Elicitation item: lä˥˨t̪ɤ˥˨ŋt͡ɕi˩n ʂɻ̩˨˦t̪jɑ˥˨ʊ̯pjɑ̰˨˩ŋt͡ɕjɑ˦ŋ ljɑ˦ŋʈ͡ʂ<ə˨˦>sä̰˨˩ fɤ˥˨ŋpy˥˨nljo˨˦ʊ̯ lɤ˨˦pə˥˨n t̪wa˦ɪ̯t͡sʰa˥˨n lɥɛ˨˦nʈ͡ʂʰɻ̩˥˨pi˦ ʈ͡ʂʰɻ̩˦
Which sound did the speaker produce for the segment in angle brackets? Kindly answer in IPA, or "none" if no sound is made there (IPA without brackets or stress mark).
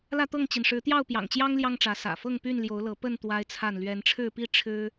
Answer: ä˨˦